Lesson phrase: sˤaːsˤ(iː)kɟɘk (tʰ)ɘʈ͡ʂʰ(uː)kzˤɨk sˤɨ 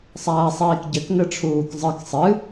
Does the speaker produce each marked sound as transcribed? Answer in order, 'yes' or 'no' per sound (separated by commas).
yes, no, yes